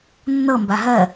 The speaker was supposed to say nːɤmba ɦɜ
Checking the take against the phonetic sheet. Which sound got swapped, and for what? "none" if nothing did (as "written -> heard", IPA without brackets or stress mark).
none